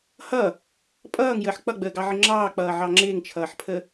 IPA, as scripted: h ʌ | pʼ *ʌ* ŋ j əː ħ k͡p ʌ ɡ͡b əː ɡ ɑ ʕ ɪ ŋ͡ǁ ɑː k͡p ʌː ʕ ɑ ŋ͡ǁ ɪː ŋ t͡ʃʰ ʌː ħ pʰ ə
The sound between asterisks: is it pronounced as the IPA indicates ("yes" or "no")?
no